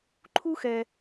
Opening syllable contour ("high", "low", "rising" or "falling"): high